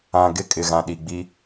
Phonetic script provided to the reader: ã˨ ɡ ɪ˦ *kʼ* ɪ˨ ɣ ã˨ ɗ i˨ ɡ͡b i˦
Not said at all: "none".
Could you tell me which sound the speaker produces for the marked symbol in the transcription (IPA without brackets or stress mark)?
kʼ